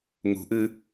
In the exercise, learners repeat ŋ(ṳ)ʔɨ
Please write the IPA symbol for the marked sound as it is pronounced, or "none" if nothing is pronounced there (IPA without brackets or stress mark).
ṳ